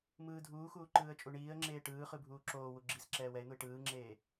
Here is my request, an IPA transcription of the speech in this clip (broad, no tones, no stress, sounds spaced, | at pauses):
m ɯː dʱ uː x uː ǃ ɯː ə̯ t͡ʃʼ u ɳ iː ə̯ ŋ͡ǁ eː ʈ ɯː χ ɯ bʱ uː ǁ oː w u ɡ͡ǁ i s ǁ ɛː w ɛ ɪ̯ n̪ u ɪ̯ ʈ ɯː ŋ͡ǁ eː